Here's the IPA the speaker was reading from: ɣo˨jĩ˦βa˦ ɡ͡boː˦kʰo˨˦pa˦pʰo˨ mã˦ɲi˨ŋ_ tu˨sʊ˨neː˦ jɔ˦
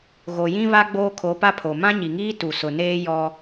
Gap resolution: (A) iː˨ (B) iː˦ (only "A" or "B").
B